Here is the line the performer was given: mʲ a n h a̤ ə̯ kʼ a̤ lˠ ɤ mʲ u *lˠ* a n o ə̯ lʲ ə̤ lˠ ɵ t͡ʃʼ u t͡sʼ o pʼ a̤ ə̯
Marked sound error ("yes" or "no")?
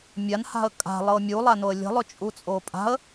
no